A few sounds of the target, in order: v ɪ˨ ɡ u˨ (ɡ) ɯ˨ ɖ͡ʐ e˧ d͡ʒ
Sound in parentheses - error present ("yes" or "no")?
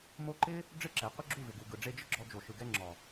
no